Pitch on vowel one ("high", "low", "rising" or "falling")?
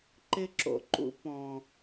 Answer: high